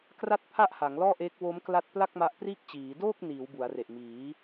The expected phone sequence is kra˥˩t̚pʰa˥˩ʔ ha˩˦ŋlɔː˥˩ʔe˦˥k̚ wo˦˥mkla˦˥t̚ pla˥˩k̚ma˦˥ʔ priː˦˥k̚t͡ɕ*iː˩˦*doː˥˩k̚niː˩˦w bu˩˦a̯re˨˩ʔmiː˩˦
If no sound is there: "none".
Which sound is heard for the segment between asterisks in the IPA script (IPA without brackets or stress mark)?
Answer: iː˩˦